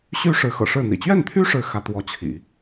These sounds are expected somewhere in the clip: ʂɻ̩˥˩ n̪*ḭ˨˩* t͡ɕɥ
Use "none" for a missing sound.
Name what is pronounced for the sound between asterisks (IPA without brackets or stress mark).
ḭ˨˩